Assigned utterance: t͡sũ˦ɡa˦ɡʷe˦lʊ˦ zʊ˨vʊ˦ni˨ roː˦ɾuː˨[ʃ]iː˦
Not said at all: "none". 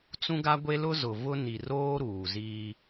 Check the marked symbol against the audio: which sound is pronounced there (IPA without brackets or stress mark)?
z